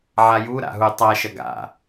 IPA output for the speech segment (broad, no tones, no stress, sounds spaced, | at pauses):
ʕ a j u ɾ a̰ ɦ u tˤ a ʃ ɐ ɡ a̰